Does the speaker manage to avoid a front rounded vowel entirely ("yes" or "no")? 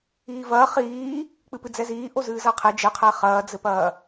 yes